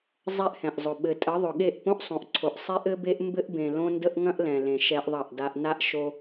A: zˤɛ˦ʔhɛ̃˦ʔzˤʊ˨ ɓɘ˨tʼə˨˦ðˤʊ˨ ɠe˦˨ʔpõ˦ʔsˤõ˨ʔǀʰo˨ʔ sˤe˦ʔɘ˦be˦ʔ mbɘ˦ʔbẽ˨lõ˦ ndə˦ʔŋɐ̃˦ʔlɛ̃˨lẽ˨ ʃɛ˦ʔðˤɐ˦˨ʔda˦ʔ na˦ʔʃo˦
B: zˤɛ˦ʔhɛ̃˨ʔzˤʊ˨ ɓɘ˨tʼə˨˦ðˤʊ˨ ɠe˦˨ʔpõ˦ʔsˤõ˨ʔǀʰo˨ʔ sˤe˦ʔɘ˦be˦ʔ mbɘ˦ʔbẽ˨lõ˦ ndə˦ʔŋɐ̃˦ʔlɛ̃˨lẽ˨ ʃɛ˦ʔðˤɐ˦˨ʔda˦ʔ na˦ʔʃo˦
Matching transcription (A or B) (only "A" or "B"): B